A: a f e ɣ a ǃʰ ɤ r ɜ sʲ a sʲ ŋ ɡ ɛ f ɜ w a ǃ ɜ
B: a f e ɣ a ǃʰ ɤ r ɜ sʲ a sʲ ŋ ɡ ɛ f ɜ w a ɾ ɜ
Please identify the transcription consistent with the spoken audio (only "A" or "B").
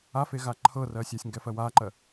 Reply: A